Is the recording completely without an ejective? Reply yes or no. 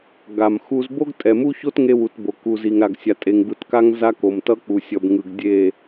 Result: no